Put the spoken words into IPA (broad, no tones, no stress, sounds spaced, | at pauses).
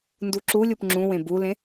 n d u ǁ u lʲ u p ŋ͡ǁ ũ w ẽ b u l ẽ